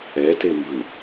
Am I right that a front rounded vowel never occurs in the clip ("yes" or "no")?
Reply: yes